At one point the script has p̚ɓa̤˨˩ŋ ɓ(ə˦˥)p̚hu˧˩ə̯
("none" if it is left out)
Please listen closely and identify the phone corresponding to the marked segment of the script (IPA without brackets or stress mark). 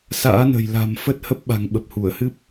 ə˨˩